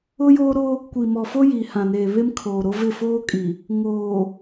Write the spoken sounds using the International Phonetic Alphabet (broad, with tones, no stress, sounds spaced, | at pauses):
ʊ˦ j oː˦ ɾ o˦ | kʷ i˨ m ɔ˨ f o˦ j iː˨ h ã˨ n eː˨ β e˦ m kʰ oː˨ ɾ o˦ v ɪ˦˨ f oː˦ kʼ i˨ | ŋ oː˨